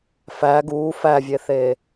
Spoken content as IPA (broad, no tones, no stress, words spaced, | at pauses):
fæ ɡuː fævʲeθeː